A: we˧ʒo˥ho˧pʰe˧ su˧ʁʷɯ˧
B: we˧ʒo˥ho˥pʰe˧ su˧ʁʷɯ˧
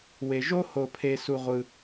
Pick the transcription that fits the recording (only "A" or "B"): A